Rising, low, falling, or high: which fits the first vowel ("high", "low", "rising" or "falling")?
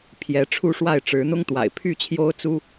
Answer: rising